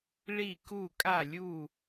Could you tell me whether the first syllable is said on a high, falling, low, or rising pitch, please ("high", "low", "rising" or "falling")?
falling